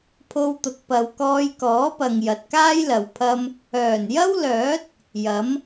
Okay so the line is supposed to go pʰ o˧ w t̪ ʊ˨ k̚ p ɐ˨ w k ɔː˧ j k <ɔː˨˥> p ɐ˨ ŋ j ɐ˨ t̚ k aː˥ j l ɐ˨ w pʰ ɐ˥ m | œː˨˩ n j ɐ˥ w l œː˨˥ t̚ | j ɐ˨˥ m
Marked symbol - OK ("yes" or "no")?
yes